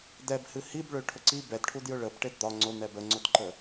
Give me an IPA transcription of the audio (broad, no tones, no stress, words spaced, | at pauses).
dɛbhɨ hibɭø ʈʰʊǀi bɛdʈʰu djʊɭəb ʈedd̪ɒ ŋ͡ǀʊn̪ɛb əŋ͡ǀʊdǃə